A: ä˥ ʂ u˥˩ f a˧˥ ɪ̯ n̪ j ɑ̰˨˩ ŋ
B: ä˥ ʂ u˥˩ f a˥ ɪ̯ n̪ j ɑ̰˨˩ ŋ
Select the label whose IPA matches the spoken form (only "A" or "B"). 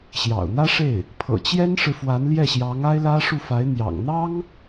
A